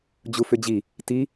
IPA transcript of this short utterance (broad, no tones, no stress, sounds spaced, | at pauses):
d͡ʑ u f ʏ d͡ʑ i | t i